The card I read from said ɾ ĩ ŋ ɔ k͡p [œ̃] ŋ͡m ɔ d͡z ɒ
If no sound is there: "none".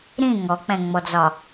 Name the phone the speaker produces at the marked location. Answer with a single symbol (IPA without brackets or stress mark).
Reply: ɛ̃